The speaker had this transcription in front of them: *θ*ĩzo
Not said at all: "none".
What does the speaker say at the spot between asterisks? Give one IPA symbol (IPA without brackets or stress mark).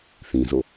θ